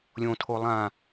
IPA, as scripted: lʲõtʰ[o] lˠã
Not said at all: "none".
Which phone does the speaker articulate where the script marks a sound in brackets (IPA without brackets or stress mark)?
o